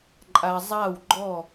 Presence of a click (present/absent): present